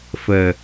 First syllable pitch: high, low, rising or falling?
low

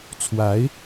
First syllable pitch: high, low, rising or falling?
rising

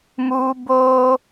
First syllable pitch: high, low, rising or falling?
high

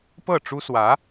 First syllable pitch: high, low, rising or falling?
falling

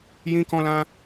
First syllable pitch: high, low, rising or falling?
high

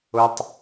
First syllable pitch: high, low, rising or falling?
high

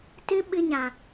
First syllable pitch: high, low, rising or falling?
high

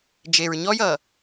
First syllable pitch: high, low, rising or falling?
low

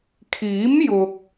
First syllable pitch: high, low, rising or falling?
rising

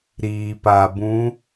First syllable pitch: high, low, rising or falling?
low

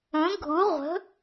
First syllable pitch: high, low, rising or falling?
rising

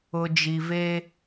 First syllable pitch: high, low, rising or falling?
low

